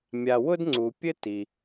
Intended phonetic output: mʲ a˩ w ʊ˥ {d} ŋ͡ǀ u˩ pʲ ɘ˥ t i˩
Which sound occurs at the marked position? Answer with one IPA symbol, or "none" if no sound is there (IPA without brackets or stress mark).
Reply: d